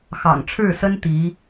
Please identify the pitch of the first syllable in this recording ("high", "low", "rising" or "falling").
low